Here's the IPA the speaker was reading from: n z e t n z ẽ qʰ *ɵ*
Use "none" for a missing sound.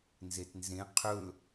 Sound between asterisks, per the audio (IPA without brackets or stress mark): ɵ